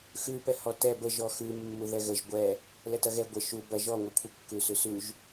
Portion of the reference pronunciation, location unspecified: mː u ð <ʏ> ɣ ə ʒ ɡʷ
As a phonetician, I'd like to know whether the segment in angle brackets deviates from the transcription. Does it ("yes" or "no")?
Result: yes